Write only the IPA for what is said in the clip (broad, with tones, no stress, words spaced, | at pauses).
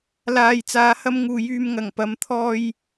laː˨jt͡saː˨˧hɐ˧mŋuː˨ jyː˨mŋɐ˨˩ŋ pɐ˨mt̪ʰɔː˧j